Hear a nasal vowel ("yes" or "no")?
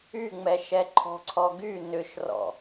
no